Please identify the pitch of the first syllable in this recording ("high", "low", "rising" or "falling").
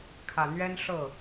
low